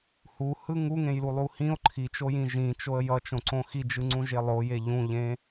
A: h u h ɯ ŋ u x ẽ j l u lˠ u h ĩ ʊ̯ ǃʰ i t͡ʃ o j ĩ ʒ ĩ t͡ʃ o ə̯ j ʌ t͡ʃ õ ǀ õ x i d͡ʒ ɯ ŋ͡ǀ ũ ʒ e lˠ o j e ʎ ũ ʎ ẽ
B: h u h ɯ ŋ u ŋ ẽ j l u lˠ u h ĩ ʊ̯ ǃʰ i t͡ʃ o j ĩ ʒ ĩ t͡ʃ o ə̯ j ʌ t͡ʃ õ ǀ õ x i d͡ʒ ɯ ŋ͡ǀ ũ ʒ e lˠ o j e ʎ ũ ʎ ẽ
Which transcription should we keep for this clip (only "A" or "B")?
B